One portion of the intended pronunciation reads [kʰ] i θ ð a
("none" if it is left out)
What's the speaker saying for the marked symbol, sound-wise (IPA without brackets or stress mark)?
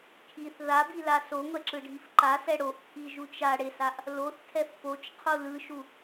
kʰ